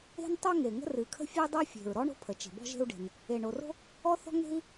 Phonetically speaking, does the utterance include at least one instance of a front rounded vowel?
no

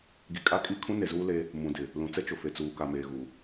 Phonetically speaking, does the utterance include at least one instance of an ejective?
yes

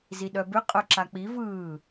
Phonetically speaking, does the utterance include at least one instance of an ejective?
yes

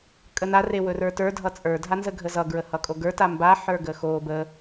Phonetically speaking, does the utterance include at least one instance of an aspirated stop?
no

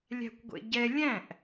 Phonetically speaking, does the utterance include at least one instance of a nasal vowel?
yes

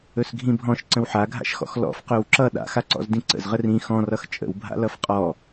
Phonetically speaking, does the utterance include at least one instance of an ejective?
yes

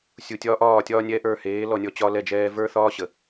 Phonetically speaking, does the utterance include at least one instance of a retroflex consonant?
no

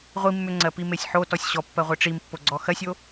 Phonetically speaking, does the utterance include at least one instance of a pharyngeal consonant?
yes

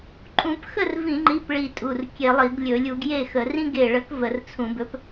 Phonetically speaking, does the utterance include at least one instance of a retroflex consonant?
yes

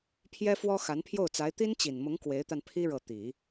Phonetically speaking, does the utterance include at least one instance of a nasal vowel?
no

